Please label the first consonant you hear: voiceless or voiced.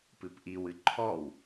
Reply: voiceless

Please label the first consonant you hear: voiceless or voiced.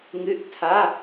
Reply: voiced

